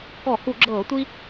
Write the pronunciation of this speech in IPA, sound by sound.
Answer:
k ɔ˧˩˧ h u˧˩˧ ɡ͡ǁ ɤː˧˩˧ tʷ i˦

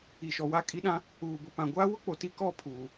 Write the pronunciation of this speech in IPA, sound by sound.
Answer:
i˨ ʃ ɔ˨ w a˦˨ kʼ i˦ ɗ ã˦ | uː˨ b ʊ˨ p ã˨ ɡʷ aː˦ w ʊ˦ k͡p o˨ t i˦ k ɔ˦˨ pʰ uː˨

